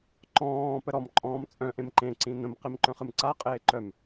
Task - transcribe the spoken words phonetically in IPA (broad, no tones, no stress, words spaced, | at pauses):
ǃɔ̃ː pəɾɔm ǃʼɔ̃ːmt͡sʼœ̃ ʔẽmǃẽ ǀĩnə̃m qimǃœ̃χɨmǀa qʼeːǃœm